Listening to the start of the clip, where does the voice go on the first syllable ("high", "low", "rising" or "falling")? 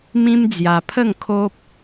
high